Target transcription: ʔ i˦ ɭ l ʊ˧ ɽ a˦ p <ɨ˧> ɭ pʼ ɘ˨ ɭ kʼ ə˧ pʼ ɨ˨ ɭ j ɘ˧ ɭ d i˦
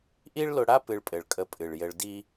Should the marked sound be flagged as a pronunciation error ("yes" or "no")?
no